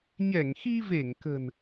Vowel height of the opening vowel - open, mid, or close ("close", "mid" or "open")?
mid